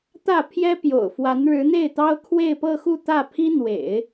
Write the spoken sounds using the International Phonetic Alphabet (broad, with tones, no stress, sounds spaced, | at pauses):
t̪ ä˥˩ pʰ j ɛ˥ p j o̰˨˩ ʊ̯ f w a˧˥ n ɻ ɻ̩˧˥ n̪ e˥˩ ɪ̯ t̪ ɑ˥ ʊ̯ kʰ w e˥˧ ɪ̯ p ɤ˥˧ x u˥˧ t̪ ä˥˩ pʰ i˥ n̪ w ḛ˨˩˦ ɪ̯